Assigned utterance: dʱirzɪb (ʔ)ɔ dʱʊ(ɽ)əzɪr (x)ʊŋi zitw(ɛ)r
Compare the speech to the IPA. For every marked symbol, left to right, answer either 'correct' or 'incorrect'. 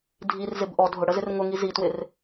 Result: correct, correct, incorrect, incorrect

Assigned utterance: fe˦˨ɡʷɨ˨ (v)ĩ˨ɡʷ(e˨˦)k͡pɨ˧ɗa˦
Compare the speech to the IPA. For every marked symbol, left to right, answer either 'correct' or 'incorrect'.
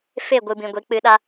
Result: incorrect, correct

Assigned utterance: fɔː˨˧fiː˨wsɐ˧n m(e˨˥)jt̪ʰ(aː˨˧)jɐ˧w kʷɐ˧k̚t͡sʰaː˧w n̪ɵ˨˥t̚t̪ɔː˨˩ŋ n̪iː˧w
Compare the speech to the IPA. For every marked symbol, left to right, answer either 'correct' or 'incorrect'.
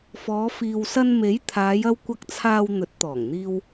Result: correct, correct

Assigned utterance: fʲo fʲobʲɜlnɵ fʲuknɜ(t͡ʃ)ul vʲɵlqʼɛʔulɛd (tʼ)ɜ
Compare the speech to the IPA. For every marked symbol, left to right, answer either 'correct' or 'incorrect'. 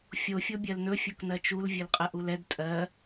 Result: correct, correct

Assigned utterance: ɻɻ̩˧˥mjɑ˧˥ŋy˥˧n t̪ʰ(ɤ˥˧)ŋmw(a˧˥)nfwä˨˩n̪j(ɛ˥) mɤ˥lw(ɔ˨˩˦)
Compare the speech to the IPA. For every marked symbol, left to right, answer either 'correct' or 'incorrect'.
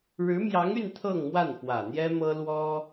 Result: correct, incorrect, correct, incorrect

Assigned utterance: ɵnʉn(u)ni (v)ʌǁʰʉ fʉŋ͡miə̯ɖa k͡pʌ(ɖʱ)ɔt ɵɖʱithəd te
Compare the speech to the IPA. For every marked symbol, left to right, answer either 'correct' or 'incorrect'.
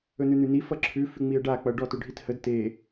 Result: incorrect, incorrect, incorrect

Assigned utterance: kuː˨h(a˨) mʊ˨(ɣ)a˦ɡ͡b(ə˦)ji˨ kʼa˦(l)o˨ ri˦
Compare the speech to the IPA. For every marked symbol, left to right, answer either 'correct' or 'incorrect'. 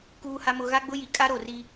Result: correct, correct, incorrect, incorrect

